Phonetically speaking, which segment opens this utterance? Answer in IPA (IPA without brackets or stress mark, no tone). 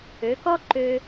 ø